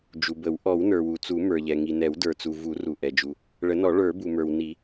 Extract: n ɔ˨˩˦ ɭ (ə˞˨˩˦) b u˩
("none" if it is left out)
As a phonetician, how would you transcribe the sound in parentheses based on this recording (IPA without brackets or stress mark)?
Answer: ə˞˨˩˦